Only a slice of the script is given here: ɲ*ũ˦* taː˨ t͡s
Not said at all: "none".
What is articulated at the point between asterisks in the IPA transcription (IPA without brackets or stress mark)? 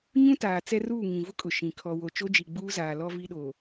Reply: ũ˦